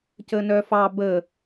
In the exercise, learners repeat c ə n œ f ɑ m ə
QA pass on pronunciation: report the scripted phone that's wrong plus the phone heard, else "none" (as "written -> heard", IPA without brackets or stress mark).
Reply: m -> b